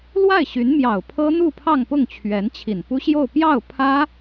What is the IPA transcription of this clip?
l w a˥˩ ɪ̯ ɕ y˧˥ n m j ɑ˨˩ ʊ̯ pʰ ɤ˥ n̪ u˥˧ pʰ ɑ˥˧ ŋ p ʊ˥˩ ŋ t͡ɕʰ ɥ ɛ˧˥ n t͡ɕʰ i˨˩ n p u˥ ɕ j o˥˧ ʊ̯ p j ɑ˥˩ ʊ̯ pʰ ä˥

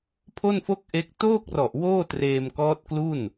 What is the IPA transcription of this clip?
pʰ o˥˩ n f o˥˩ k̚ ʔ e˦˥ k̚ t oː˥˩ k̚ r ɔ˨˩ ʔ w oː˥˩ t r eː˧ m k ɔː˦˥ t̚ k l u˥˩ n

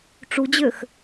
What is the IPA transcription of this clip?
ʈ͡ʂ u d͡ʑ ø x

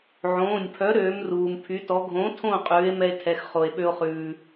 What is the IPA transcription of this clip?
ʕ õː˩˧˩ nʲ pʰ œ˨˥ ɾ øː˨˥ m r uː˩ m pʰ y˨˥ t ɔ˨˥ ɡʱ õ˨˥ tʰ õ˦˨ qʼ ʉː˨˥ e̯ m ɛ˦ e̯ tʰ ɛ˩˧˩ x χ o˩ e̯ ɓ ø˦ o̯ χ ʉː˩

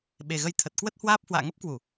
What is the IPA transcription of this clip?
ɓ e˨˩ ɣ ə˧ j t̪ʰ ə˨˩ t̚ k w ə˦˥ t̚ h w aː˦˥ p̚ h w a̰ː˧˨ ŋ ə˦˥ p̚ k w u˧˩˨

